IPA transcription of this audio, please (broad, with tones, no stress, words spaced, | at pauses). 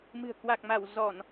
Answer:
mɨ̤˨˩ə̯ kwa˨˩k̚ma˧˩w zɔ˧˩˨n